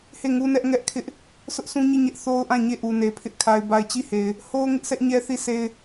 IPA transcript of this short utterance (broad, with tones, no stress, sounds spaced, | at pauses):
h e˦˨ ŋ u˦ n ɛ˦ ʔ ŋ ɛ˦ ʔ kʰ ɪ˦ ʔ | sʰ ʊ˦ ʔ s ũ˦ ɲ i˦˨ ɲ ɛ˦ ʔ θ o˦ ʊ̯ ʔ ã˦˨ ɲ e˦˨ ʔ u˨ n e˨ pʰ ɪ˦ ʔ kʰ a˨ ɪ̯ b a˨ ɪ̯ t͡ɕ i˦˨ h e˨ ɪ̯ | h o˦ ʊ̯ ŋ ɪ˦ ʔ sʰ ɛ˦ ʔ ɲ ɛ˦ θ i˦˨ sʰ e˦ ɪ̯